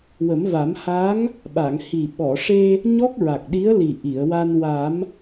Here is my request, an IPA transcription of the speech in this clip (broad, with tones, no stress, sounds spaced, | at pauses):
w ə˨˩˦ m v a˨˩˦ m h a˧˥ ŋ | ɓ a˨˩˨ ŋ h i˨˩ ɓ ɔ˨˩˨ ʂ e˧ | ɲ ɔ˦˥ k̚ ɹ a˨˩ k̚ ɗ i˧˥ ə̯ l i˨˩ ʔ i˨˩˨ ə̯ w a˧ n w a˨˩˦ m